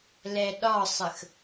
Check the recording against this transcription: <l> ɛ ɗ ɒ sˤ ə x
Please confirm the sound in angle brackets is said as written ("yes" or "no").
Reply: yes